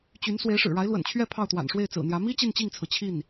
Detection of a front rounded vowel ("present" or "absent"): present